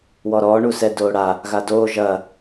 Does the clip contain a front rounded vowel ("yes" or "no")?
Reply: no